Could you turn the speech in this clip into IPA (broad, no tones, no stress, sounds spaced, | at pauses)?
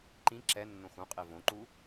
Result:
ǃ ĩ ǁ ɛ nː õ x ũ qʼ e v õ ǃ u